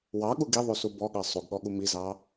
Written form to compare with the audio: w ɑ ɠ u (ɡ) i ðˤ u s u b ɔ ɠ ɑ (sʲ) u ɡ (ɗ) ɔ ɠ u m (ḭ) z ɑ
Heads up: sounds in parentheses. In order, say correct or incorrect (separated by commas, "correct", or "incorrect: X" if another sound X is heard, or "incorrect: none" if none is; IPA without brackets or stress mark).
correct, incorrect: sˤ, incorrect: ɠ, incorrect: i